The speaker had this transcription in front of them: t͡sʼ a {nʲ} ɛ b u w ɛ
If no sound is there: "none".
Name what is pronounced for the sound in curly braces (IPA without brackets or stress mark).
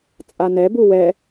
n